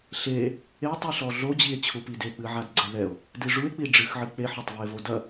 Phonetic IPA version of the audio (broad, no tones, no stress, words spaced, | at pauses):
ɬe | etˤiɬɔ ɮod͡ʑie̯ t͡ɕʰupidek͡pɨ ʕadɡ͡ǀɛðɛo̯ | dɨʐue̯k͡pi ɖ͡ʐɨxʕɨ k͡peħɔtˤvie̯vo dɐ